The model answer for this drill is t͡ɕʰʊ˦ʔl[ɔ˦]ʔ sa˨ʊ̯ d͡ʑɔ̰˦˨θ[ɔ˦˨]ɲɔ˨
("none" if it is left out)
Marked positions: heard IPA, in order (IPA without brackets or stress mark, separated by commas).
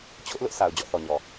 ʊ˦, ɔ˨